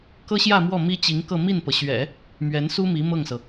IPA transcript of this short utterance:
k ɤ˥ ɕ j ä˥˧ m w ɔ˥˩ m i˥ t͡ɕ i˧˥ ŋ k ɤ˥˧ m i˥˩ n p ɤ˩ ɕ ɥ ɛ̰˨˩˦ | m ɥ ɛ˧˥ n s u˥ m i˧˥ m ɤ˥˩ ŋ s ɤ˩

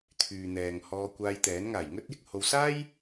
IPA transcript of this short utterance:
t̪ʰ yː˨ n̪ ɛː˨ ŋ h ɔː˧ kʷ aː˧ j t̪ ɛː˨˥ n ŋ aː˨˩ j ŋ ɵ˥ t̚ j ɪ˧ k̚ h o˧ w s aː˥ j

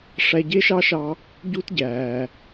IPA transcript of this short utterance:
ʂ æ˧ ɟ e˥ ʃ ɑ˥ ʃ ɑ˧ | ɟ u˥ t ɟ æː˩

